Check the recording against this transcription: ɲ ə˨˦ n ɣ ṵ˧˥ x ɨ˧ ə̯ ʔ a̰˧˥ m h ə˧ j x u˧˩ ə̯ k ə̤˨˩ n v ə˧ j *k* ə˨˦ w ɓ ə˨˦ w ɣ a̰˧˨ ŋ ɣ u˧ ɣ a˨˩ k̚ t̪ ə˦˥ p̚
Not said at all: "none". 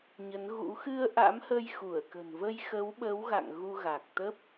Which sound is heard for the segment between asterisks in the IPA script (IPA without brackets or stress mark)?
x